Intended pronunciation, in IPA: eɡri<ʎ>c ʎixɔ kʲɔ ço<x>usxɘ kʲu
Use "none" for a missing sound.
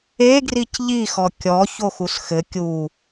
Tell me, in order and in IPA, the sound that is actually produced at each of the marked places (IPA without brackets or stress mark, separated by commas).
none, x